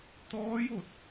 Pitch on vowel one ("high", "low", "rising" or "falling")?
rising